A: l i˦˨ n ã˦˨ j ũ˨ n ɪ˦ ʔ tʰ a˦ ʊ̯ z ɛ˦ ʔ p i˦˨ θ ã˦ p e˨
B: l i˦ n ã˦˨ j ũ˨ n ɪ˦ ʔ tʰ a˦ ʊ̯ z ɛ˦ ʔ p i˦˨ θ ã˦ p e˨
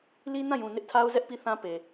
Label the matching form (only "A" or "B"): B